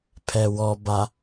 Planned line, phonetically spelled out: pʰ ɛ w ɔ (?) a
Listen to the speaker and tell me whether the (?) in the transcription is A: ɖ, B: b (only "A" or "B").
B